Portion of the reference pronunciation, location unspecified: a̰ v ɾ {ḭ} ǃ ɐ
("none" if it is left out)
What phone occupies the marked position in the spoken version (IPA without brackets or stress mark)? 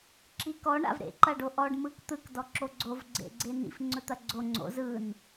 ḛ